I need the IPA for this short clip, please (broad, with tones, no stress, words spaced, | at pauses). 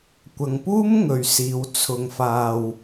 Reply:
kʷɐ˨ŋpuː˥mŋɵ˨ɥsiː˨˧w t͡sʰʊ˧ŋfaː˧w